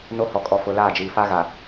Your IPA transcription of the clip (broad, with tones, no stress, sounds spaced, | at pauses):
n o˦ h ɔ˨ kʼ ɔ˨ f ʊ˨ l aː˦˨ d͡ʒ iː˨ f a˦ ɣ a˨